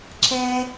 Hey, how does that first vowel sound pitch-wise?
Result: low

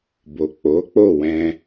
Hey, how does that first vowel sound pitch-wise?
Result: low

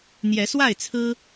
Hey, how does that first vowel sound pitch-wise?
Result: rising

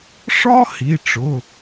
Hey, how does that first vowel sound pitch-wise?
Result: high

